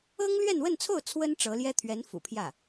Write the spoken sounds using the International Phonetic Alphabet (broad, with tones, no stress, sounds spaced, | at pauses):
ɤ˥ ŋ l ɥ ɛ˥˧ n w ə˥˧ n t͡sʰ o˥˩ ʊ̯ t͡sʰ w ə˥ n ʈ͡ʂ ɤ˧˥ l j ɛ˥ t̪ʰ ɥ ɛ˧˥ n f ṵ˨˩ pʰ j ä˥˩